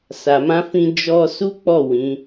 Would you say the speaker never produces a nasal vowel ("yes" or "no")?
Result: no